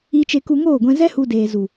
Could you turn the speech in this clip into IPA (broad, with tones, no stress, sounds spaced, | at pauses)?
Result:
i˦ t͡ʃ e˦ k u˧ ŋ oː˦˨ ɡʷ ɛ̃˧ z ɛ˦ h u˧ d eː˨ z u˨